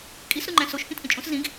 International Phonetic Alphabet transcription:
kʼ i s ɾ u ŋ͡ǃ æ̃ s o ʃ k ĩ t ʔ ĩ t͡ʃʼ õ s z ĩ ɡ

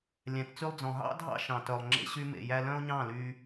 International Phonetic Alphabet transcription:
lʲ æ̃˨ t t͡s y˧ lˠ d͡z ɔ̃˨ ɦ ɑ̰˦ dʱ ɑ̰˦ ʃ ɑ̃˨ t œ˨ lˠ ŋ͡ǁ ḛ˧ ɕ y˧ m ḛ˨ j æ˧ l œ̃˦ o̯ ɲ ɑ̃˦˨ l y˧

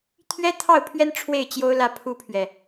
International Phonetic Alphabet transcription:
t̪ʰ ɥ ɛ˥ t̪ʰ ɑ˥˩ ʊ̯ pʰ ɥ ɛ˥ n ʈ͡ʂʰ w e˥˩ ɪ̯ t͡ɕ j o˥ ʊ̯ l ä˥˩ pʰ u˥ pʰ ɥ ɛ˨

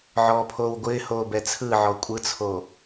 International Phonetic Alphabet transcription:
ʕ ɔː pʰ oː w ɡʷ ɪː h oː b ɛ t͡sʰ ɯ ʕ ɔ kʷʼ ɯ t͡sʰ o

